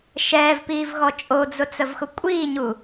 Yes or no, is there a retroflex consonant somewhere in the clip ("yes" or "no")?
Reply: no